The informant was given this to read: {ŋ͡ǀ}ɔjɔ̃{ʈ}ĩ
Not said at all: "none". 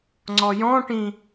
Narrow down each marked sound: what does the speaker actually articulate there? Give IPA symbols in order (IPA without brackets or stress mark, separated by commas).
ŋ͡ǀ, ʈ